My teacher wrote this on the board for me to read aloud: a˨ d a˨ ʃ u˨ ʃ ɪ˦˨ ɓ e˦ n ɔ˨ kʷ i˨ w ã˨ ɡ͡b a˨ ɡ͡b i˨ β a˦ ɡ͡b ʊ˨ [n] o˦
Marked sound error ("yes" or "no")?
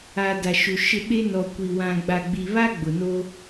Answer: no